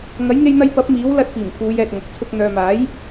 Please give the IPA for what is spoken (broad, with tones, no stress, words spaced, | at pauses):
ŋɐ˨˥jŋe˧jn̪ɐ˧j pɐ˨˥p̚ miː˨˥w lɐ˧t̚piː˨˩m pʰuː˨˧jɛː˨t̚ ŋɐ˨k̚t͡sʰʊ˧k̚ n̪œː˨maː˨˥j